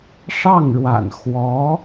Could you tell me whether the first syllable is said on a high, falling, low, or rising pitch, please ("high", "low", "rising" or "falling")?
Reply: falling